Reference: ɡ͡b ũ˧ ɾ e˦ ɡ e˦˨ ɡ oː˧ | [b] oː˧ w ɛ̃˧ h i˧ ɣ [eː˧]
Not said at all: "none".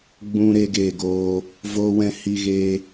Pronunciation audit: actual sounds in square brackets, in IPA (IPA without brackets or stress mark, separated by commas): v, eː˧